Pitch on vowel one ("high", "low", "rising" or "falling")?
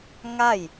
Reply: falling